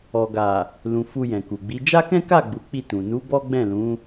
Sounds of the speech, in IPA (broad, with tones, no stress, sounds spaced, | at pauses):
ɔ˨ ɡ a˨ | l ũ˨ f u˧ j ɛ̃˨ k u˨ ɡ͡b i˨˦ d͡ʒ a˦ k ɛ̃˦ k a˦˨ ɡ͡b u˨˦ k͡p i˦˨ t ũ˨ n u˨˦ b ɔ˦ ɡ͡b ɛ̃˦˨ l ũ˨˦